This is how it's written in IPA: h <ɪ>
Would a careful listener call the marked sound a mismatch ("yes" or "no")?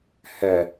yes